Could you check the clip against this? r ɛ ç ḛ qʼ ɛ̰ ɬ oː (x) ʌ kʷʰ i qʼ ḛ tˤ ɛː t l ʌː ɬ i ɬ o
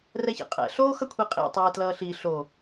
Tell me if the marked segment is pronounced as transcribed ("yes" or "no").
yes